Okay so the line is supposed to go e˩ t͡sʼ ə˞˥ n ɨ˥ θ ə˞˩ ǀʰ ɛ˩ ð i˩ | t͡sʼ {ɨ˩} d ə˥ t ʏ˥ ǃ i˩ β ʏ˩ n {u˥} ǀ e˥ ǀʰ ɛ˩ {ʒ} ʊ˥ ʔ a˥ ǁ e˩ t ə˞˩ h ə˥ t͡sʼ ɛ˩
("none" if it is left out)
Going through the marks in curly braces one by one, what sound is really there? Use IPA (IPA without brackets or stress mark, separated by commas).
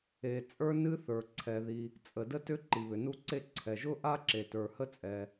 ə˩, u˥, ʒ